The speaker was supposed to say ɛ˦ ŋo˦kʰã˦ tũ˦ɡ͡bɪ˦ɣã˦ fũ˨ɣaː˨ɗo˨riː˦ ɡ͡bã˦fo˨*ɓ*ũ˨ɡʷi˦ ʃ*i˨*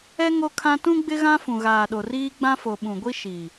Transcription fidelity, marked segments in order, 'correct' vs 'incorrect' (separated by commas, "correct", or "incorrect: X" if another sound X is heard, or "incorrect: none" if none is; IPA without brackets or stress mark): correct, correct